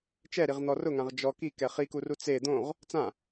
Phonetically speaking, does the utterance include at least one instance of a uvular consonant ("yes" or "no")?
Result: yes